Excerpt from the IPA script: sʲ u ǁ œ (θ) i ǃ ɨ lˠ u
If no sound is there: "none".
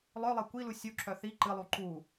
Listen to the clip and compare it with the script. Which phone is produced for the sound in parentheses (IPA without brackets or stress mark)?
θ